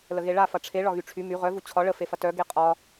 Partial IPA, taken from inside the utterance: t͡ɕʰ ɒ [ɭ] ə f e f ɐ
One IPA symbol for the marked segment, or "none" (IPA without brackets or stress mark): ɭ